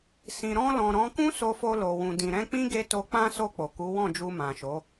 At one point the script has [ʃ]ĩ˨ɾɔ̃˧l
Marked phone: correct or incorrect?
incorrect